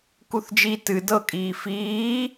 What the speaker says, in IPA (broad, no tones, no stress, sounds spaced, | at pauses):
k u θ d͡ʒ i t ɨ d ɤ kʼ iː f iː